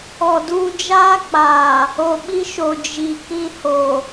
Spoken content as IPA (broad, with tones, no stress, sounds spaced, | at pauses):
ɔ˨ d uː˦ d͡ʒ aː˦ k͡p aː˨ | o˨ ɓ i˦ ʃ o˨ d͡ʒ i˨ k ĩ˦ h o˨